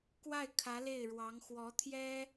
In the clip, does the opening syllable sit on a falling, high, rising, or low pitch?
falling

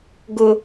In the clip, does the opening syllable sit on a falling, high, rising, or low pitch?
low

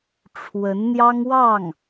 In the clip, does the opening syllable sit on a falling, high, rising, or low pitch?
rising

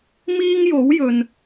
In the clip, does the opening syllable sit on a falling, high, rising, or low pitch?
high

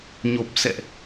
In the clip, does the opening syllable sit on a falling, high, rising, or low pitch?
low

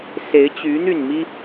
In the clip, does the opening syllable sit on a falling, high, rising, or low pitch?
rising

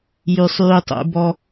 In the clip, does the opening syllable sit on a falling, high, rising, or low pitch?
low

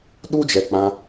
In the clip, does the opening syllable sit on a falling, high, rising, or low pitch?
high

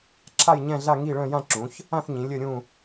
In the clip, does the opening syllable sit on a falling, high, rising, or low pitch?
falling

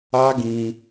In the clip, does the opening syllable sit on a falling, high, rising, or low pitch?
high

